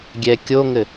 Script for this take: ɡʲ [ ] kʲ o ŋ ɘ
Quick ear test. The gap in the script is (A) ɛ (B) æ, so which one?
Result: A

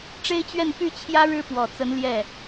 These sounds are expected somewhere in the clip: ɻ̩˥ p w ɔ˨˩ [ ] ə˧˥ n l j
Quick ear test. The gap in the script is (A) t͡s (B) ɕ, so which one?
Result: A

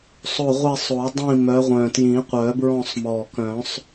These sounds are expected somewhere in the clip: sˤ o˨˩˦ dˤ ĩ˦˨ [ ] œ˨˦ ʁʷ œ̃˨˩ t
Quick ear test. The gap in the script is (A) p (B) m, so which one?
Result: B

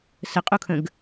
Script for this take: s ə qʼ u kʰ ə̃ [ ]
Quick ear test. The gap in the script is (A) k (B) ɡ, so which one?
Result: B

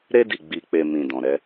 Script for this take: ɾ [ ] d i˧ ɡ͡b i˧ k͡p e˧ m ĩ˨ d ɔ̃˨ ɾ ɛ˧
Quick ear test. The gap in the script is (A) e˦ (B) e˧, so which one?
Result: A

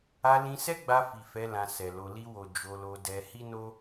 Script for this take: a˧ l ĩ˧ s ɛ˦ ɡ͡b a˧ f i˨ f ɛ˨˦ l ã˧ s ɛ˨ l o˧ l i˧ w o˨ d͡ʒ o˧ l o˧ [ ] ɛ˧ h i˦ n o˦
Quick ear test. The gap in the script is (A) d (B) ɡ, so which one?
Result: A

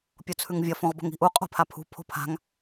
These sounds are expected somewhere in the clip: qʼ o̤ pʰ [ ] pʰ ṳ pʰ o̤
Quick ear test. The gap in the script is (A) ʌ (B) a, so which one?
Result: B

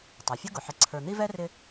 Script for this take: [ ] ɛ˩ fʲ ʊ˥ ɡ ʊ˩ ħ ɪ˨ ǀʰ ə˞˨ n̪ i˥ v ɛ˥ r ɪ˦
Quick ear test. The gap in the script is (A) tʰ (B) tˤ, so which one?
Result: B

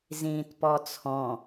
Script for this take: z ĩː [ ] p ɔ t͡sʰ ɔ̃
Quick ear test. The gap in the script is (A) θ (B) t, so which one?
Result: B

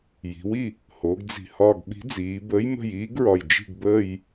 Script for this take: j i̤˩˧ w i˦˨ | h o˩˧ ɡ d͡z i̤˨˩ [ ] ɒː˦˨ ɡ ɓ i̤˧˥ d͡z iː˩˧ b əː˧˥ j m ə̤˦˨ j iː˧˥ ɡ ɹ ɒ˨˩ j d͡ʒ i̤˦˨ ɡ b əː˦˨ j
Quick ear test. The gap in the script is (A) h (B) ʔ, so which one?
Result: A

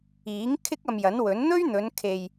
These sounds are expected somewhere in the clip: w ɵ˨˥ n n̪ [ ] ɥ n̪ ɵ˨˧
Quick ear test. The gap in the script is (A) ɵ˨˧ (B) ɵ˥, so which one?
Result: B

